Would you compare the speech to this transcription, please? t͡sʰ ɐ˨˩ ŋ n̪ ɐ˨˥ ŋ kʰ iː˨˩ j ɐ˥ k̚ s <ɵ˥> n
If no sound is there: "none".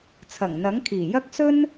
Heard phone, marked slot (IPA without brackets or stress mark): ɵ˥